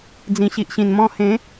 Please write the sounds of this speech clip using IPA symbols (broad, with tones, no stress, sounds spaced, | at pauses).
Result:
d͡z ĩ˨˩ ɕ i˨ ʔ ɕ ĩ˨˩ n m ɔ̃˧ h ẽ˨˦